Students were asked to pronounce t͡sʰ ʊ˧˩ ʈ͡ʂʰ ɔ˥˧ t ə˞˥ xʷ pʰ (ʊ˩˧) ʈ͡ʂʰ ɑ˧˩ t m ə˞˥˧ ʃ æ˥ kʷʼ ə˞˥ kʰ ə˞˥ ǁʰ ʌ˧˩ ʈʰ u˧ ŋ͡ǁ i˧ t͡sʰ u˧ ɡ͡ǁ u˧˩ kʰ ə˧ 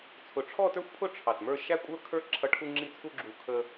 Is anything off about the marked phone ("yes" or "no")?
yes